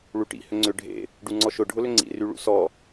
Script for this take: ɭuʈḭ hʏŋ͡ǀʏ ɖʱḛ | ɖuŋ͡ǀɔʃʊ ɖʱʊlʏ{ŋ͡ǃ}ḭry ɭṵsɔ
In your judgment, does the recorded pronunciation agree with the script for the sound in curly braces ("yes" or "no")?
no